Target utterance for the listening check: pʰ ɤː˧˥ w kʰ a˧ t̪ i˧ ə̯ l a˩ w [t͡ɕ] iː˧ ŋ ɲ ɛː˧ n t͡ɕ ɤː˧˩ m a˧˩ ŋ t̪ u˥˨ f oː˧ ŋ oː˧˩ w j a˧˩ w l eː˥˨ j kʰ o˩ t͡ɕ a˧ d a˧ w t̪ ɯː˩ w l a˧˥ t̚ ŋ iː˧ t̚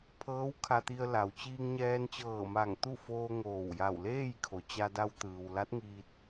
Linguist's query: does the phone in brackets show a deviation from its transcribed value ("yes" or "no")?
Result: no